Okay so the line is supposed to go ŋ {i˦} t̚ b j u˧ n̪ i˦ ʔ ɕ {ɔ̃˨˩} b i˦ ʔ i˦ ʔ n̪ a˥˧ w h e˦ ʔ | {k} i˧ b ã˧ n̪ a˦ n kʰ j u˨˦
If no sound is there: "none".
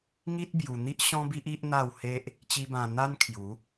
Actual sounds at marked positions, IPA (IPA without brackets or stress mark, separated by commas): i˦, ɔ̃˦, t͡ɕ